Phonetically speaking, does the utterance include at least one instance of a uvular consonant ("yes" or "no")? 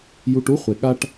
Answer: yes